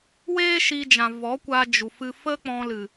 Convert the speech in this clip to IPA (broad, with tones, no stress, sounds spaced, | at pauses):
w eː˦ ʃ iː˧ d͡ʒ ã˨ v ɔ˨˦ kʷ a˧ d͡ʒ u˨ f ɨ˧ f ə˦ k͡p ɔ̃˧ l ɨ˨